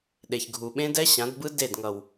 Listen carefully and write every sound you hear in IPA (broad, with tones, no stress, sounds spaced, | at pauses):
ɗ e˨ ç ɡʱ u˨ ɓ ẽ˦ d ɛ˦ ɕ ã˨˦ d b ɯ˦ d e˦˨ d ŋ ʌ˨ w